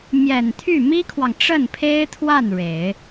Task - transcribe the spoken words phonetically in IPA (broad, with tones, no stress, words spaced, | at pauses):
mjɛ˨˩n t̪ʰy˥˩mi˥kʰwɑ˨ŋ ʈ͡ʂə˥˩npʰe˥ɪ̯t̪ʰwa˥˩n ɻe˨˩˦ɪ̯